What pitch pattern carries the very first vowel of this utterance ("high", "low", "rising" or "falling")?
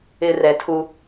low